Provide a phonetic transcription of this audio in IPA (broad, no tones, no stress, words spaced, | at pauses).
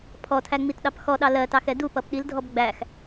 pʰɔtʰæ ŋ͡mitɗɑpxɔɗɑ lɜtɑx ɛdupʌp ɗildʱɔb ɡ͡bæx